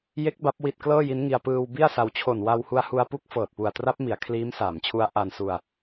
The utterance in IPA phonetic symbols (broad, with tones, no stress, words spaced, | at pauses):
je˦˥k̚ ba˦˥p̚ wi˨˩t̚ klɤː˥˩ji˦˥nŋi˧a̯ pɯː˧w bi˥˩a̯sa˧w t͡ɕʰo˨˩nwa˧whu˧a̯hu˧a̯ pu˦˥k̚fɤː˨˩t̚ pu˨˩a̯tra˦˥p̚mi˩˦a̯ kʰliː˦˥msaː˩˦mt͡ɕʰu˦˥a̯ ʔa˧n su˧a̯